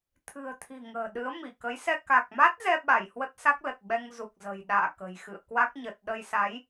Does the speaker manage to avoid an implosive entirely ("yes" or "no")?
no